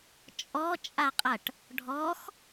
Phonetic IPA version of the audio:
t͡ʃʼ ɔ t͡ʃʼ a qʼ ɐ ʈ | ɖʱ ɔ x

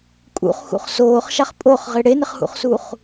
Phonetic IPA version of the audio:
kʼ ṵ χ x ṵ χ s oː χ ʃ a χ pʼ o χ ʁ ɪ ɽ e n ɪ χ h ṵ χ s u χ

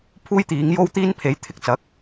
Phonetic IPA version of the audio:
pʰ uː˥ j t̪ iː˨˥ ŋ j o˥ w t̪ iː˥ n pʰ e˨˥ j t̪ʰ ɪ˧ k̚ t͡s ɐ˨˥ k̚

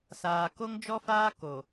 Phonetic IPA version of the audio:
s aː˨ k o˦ ŋ d͡ʒ ɔ˦ f aː˦ k o˨

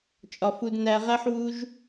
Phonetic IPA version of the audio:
t͡ʃʼ ɒ˩ f u˨ d n æ˨ ʁ æ˦ ħ w u˦ ʒ

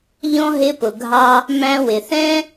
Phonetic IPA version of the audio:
ʎ ɔ̃˥ ɦ ɪ˧ p ʊ˩ ɡʱ ɑ˧ | m æ̃˧ w ɪ˩ θ ɛ̃˥

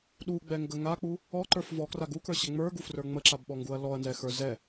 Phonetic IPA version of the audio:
ɗ u ɡ͡b ɛ ŋ ɡ ə ŋ a k͡p u | ɔ ǃ ə˞ f v ɔ k r a ɡ u k ə˞ ɕ ɛ ŋ͡m ə˞ ɡ u f r ə˞ ŋ͡m ə ǁ a b ɓ ɔ ŋ ɡ u ɐ̯ l ɔ ɐ̯ n z ɛ x ə˞ z ɛ

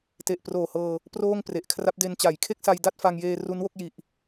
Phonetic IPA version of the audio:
t e˨˩ ʔ p r oː˨˩ h ɤː˧ | p r oː˥˩ ŋ p r e˨˩ ʔ kʰ r a˦˥ p̚ d e˧ n t͡ɕ a˩˦ j kʰ e˥˩ k̚ s a˧ j d a˥˩ t̚ f a˧ ŋ j eː˧ r u˦˥ n w o˦˥ k̚ j i˨˩ ʔ

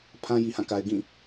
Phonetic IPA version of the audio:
pʰ ã˦ j i˨ h ã˦˨ k a˨ ɪ̯ ɡ ĩ˦˨

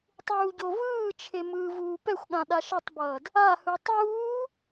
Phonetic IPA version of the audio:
tˤ uː ɟ o v ɯː t͡ʃʰ e m ɯː v uː p ɛ xʷ ɠ ã ɗ a ʃ ʌ tˤ b ʌː d | a h ɯ tˤ uː

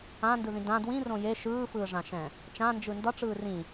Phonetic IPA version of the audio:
ã n d ɯ ð ĩ d ã d w ĩ r õ j e ʃ ɯː f ɯː ʐ ã ʃ ɛ̃ | t͡ʃ ã n d͡ʒ ɯ n d ʌ ʈ͡ʂ ɯː r ĩ

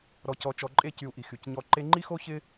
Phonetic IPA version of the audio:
ɾ ɔ˧ c ɔ˧ t͡ʃ ɔ˧ ǃʼ e˧ c y˨ u̯ ʔ i˨ x y˨ c ɲ ɔ˦ ǃ e˧ ŋ͡ǃ i˦ x o˦ ç ɪ˦

